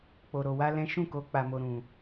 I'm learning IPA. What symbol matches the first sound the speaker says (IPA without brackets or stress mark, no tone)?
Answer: k͡p